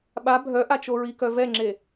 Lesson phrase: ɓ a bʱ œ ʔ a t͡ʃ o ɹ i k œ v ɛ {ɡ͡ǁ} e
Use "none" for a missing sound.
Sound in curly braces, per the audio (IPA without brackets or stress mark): ŋ͡ǁ